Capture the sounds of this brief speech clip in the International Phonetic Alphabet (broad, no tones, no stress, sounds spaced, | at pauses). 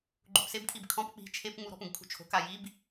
ɡ͡ǃ u p s e b kʰ i b kʰ ɔ̃ p k͡p i̤ t͡ʃʰ e p ŋ͡m u ɾ ɔ̤ p ũ ɡ kʰ ṳ t͡ʃʰ o̤ k a j i b